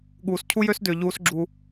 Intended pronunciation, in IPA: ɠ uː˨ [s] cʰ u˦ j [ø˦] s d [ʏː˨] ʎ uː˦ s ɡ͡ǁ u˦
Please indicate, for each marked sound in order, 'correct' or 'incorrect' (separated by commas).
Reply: correct, correct, correct